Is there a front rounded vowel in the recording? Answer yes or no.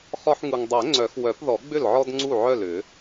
yes